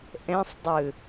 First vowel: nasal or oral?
nasal